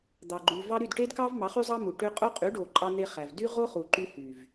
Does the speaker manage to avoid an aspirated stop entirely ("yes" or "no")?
yes